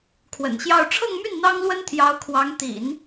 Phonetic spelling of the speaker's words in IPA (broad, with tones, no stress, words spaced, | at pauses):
kʰwə̰˨˩nɕjɑ˥˧ʊ̯ ʈ͡ʂʰɤ˥˧ŋmy˥˩n n̪ɑ˥ŋlwə˥nt̪ʰjɑ˧˥ʊ̯kʰwɑ˧˥ŋ t̪ḭ˨˩˦n